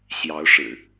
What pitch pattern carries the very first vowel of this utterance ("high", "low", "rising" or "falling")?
rising